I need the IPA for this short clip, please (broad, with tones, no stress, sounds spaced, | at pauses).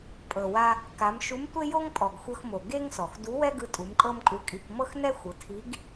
pʼ ɤ˩ w a˧ | k a˩˧ m ʃ u˧˥ m tʷ e˥ j o˥ ŋ pʼ ɔ˩ ɡ xʷ ɤ˧ x m o˩ ɡ e˥ ŋ s ɔ˩ x d u˧˥ w ɛ˥ ɡ ɯ˧ tʼ u˩˧ m kʼ ɤ˥ m kʼ u˧˥ kʼ i˧ k m ɤ˥ x n ɛ˥ xʷ ɯ˩˧ tʰ i˧˥ ɡ